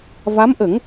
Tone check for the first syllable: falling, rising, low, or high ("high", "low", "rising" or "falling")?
rising